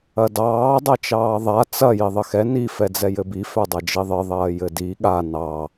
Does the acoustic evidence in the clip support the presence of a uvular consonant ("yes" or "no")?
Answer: no